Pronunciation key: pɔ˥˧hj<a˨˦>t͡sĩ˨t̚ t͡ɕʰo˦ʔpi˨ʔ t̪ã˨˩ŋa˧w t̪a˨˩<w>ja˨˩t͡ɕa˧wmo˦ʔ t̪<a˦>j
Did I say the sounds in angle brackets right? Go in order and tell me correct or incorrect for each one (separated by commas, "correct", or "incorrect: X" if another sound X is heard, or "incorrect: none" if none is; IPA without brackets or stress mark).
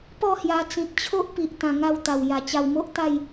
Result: incorrect: a˧, correct, incorrect: a˥˧